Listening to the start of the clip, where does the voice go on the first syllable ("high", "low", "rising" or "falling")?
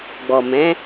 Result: low